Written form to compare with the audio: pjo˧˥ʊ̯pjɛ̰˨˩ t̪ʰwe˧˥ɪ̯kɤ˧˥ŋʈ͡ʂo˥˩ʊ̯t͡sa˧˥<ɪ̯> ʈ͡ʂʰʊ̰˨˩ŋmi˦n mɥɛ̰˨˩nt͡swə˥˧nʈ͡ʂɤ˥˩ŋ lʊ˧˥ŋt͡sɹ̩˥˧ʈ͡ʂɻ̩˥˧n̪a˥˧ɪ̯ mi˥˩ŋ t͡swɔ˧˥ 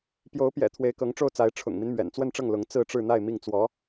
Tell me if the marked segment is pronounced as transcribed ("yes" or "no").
yes